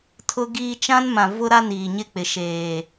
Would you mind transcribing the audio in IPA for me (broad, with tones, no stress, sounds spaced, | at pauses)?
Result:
tʰ ʊ˦ ɡ iː˦ t͡ʃ ã˦ n m ã˨ v ʊ˦ ɾ a˦ n iː˨ ɲ ɪ˦˨ k͡p ɪ˨ ʃ eː˨